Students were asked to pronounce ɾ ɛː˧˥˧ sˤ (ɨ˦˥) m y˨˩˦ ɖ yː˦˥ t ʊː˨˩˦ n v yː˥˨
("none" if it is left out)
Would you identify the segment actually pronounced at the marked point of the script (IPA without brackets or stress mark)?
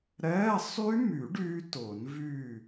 y˦˥